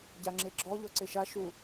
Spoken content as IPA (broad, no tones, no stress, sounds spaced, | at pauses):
ɟ a ŋ͡ǁ e ɡ͡ǁ ɔ ʎ ɔ ǀ e ʃ a ʃ u